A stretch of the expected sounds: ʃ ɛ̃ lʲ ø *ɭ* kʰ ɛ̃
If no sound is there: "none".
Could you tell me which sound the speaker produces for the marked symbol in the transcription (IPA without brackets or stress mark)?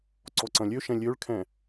ɭ